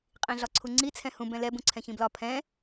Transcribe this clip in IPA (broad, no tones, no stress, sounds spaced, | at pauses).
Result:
qʼ ĩ ɮ ɒ ǀʰ u ŋ͡ǀ i t͡sʰ ɛ̃ h ũ b ɛ̃ l ɛ b ũ ǀʰ ɛ̃ ç ĩ b l ɒ pʰ ɛ̃